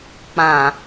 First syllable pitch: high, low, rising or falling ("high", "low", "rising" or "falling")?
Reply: low